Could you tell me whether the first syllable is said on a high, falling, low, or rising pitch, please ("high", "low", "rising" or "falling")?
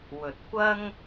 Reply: low